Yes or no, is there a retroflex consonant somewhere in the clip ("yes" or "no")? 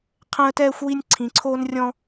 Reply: no